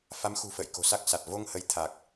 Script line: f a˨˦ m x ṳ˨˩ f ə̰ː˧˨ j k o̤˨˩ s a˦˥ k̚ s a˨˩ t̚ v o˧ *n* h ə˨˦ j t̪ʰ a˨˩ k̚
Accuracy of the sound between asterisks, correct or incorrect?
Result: incorrect